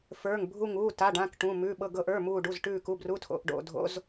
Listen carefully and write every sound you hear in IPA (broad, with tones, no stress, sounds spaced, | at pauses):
f ə˞˩˧˩ ŋ bʱ u˧˩ ŋ uː˩˧˩ t a˩˧˩ ɖ ã˩˧˩ k ʈ ũ˩˧˩ m ʉ˩˧˩ ɓ ɤ˧˩ ɡ ɤ˧˩ ʔ ə˞˩˧˩ m uː˧˩ ɖ u˩˧˩ z ʈ ʉː˧˩ k u˩˧˩ b r u˩˧˩ tʰ o̰˩˧˩ ʔ ɖ o̰˧˩ dʱ o̰˩˧˩ z